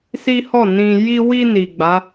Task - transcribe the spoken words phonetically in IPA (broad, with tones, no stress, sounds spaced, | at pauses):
s i˦ h ɔ˦˨ n ĩ˧ j i˧ w i˧ n i˨ ɡ͡b a˨˦